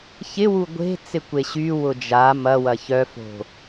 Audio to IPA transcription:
çɪwu ɡʷe̤ t͡sɪkʷeɕy wʊd͡ʒa mɐwɐ çœfo̤

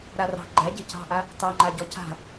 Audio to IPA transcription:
ɾarɑ̤ ɡ͡ǃæɟe̤ cɑ̤ʔa | tɑŋ͡ǃa ɟɔca̤

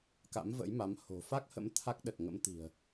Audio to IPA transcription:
ka̰˧˥mvə̰˧˥jma˨˦m ho̤˨˩fa˦˥k̚hə̰˧˥m t̪ʰa˦˥k̚ɗə˨˩t̚ŋə̰˧˥m t̪i̤˨˩ə̯

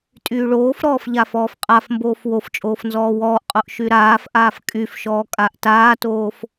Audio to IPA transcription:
tʼyːɭoːfɾɔːf ʎafɔːfqʼafmboːf woft͡ʃʼoːf nzɔːwɔːʔqʼoʔ ʃyɾaːfʔaːf kʼyfʃɔː kʼaʔtaːtoːf

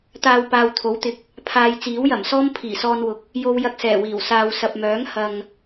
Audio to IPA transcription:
t̪aː˧w paː˨wt̪ʰo˨˥wt̪ɪ˨˥k̚ | pʰaː˧j t͡siː˨˥wjɐ˨˩msɔː˥m pʰiː˨˩sɔː˧nwʊ˨k̚ | jo˧wjɐ˧k̚sɛː˨˩wiː˨˩w saː˨w sɐ˨p̚mœː˨˥ŋ hɐ˨ŋ

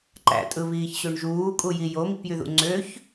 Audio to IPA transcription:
ǃæ̰tʼɯβiːçɕøɳ ʒuːkʼuji jomipjyðṵ ŋ͡ǀøç

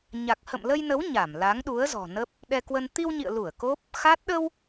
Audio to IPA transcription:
ɲa˨˩k̚hə̰˧˨mlə˧jnə˨˦w ɲa˧˩mla˨˦ŋɗu˨˦ə̯ zɔ̤˨˩nə˦˥p̚ | ɗɛ˧kwə˧n t̪i˧wɲḭ˧˨ə̯lu˧˩ə̯ ko˦˥p̚ | xa˦˥t̚ ɗə˧w

